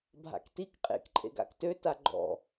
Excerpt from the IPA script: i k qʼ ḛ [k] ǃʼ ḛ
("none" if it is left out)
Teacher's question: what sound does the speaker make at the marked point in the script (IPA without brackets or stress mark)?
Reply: k